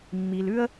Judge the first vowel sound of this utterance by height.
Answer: high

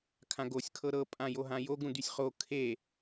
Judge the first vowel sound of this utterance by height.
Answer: low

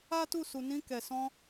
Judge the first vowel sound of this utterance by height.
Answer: low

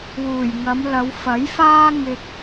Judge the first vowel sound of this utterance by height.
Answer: high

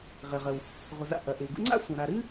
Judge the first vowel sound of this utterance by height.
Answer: high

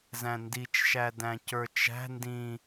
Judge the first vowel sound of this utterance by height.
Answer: low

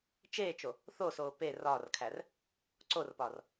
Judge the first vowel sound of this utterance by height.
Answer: mid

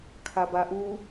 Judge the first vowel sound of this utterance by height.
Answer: low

